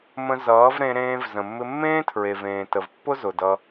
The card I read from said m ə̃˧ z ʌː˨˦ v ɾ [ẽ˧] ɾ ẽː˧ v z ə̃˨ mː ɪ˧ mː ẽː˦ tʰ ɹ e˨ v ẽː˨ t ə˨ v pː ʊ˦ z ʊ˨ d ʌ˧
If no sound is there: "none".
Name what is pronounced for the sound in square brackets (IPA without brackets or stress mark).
ẽ˧